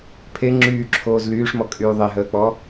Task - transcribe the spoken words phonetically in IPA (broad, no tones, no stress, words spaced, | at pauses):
pʰe ŋ͡ǁyːǁʰoːz lyːʂmɔkʼyː ðˤeɦəːk͡pɔ